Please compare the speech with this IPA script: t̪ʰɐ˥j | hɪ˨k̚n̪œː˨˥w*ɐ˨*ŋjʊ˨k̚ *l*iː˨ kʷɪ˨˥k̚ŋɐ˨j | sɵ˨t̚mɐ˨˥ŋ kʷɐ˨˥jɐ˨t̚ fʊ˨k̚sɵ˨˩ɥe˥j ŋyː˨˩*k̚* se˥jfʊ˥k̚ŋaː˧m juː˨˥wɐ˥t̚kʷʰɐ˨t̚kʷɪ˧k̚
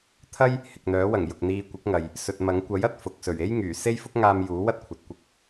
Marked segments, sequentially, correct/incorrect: incorrect: ɐ˨˩, incorrect: n̪, incorrect: none

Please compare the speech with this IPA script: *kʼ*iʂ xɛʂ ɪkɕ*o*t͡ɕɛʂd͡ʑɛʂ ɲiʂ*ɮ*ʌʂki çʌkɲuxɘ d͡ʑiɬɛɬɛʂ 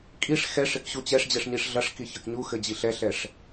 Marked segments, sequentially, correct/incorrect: correct, incorrect: u, correct

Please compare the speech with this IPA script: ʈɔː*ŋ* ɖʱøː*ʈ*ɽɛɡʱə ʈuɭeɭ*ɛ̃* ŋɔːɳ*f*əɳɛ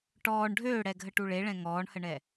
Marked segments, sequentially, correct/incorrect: incorrect: ɳ, incorrect: none, correct, incorrect: h

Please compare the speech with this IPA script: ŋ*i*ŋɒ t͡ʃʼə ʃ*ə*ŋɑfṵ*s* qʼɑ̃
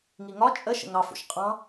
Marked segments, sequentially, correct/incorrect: correct, incorrect: ə̰, incorrect: ʃ

